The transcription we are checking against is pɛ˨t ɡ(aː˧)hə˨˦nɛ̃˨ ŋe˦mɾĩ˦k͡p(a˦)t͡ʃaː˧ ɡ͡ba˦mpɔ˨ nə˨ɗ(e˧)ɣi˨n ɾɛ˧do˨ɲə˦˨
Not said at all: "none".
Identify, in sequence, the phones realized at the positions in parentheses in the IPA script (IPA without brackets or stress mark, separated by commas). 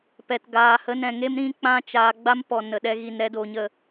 aː˨, ã˦, ɛ˧